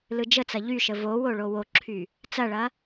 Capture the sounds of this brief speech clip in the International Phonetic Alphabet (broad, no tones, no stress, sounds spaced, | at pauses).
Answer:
l ɯ d͡ʒ ə t͡s ɐ ʎ y ʃ ə v o w o ɭ o w o ǁʰ y | t͡s ɐ ɭ ɐ